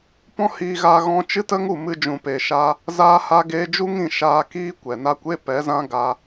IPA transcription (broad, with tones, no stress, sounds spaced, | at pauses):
p ɔ̃˦ h iː˧ ɣ aː˧ ɣ ɔ̃˧ t͡ʃ ɨ˦ t ə˦ ŋ u˦˨ m ɨ˧ d͡ʒ ũ˨ p eː˨ ʃ a˦ | z aː˦ h a˦ ɡ eː˦ d͡ʒ u˦ ŋ ĩ˦˨ ʃ aː˧ k iː˦ kʷ ɛ˨ n a˦ kʷ e˦ p ɛ˨˦ z ã˦ ɡ a˦